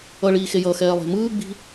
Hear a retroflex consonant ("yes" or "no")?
yes